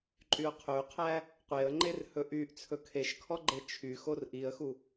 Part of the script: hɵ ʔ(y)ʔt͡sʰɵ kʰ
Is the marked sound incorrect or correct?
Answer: correct